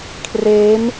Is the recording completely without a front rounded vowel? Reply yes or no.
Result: yes